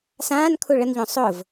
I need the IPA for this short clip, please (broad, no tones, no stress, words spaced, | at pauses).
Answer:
sãːnkʰu ɭənʎõ sˤʊv